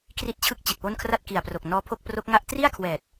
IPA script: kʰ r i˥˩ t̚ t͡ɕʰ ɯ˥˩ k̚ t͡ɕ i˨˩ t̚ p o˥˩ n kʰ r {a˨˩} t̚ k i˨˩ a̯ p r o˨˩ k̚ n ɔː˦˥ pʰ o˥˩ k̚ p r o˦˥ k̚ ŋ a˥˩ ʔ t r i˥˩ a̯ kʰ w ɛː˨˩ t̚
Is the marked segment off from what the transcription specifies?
yes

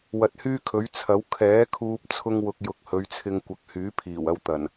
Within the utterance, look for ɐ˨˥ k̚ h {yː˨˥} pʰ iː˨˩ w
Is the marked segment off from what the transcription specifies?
no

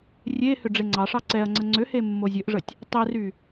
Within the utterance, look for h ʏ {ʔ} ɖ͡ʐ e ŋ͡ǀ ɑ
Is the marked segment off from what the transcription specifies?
yes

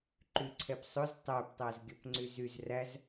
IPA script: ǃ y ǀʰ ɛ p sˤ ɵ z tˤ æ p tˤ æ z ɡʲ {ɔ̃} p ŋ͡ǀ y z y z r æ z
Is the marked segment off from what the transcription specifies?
yes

